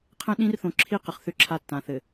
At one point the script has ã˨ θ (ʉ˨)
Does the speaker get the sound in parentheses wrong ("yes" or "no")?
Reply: yes